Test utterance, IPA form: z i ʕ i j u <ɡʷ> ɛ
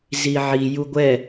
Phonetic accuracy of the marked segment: correct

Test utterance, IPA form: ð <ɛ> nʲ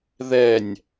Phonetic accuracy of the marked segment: correct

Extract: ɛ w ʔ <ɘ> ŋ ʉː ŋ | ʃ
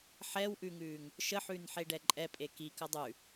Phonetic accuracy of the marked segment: incorrect: ʉ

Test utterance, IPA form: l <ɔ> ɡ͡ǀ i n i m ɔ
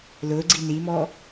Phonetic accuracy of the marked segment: incorrect: ʊ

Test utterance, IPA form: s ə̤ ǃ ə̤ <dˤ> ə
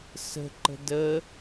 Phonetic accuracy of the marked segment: incorrect: d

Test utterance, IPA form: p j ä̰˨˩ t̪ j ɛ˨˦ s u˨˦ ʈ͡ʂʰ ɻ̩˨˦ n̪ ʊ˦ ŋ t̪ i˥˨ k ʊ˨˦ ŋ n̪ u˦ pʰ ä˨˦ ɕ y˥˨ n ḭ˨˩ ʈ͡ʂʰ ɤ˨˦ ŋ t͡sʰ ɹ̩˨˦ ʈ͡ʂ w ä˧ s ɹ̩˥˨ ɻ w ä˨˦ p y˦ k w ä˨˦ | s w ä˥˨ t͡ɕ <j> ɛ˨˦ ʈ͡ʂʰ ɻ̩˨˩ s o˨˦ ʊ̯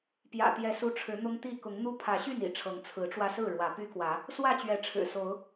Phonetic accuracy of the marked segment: incorrect: ɥ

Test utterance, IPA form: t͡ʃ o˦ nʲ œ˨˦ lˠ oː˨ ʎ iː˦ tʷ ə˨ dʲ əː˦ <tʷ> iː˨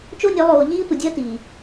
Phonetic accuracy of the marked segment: incorrect: t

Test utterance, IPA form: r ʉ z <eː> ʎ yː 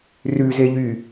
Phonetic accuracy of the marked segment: incorrect: e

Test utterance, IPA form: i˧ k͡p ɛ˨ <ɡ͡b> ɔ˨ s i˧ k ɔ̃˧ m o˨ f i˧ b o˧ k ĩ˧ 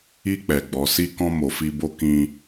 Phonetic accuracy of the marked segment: correct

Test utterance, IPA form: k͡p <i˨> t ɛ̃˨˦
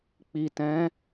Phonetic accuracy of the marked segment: correct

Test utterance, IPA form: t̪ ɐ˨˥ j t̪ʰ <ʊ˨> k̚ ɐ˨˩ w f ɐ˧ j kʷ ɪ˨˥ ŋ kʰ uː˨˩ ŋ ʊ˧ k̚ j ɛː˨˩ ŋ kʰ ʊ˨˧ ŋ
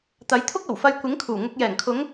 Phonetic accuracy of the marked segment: incorrect: ʊ˥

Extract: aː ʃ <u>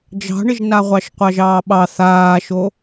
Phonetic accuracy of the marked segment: incorrect: o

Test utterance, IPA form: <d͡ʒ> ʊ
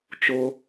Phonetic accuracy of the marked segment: incorrect: t͡ʃ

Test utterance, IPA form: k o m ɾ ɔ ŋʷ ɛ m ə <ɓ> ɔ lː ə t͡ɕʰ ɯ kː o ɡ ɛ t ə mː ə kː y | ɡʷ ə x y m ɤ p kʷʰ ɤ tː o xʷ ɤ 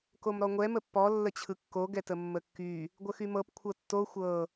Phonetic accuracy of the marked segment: incorrect: pː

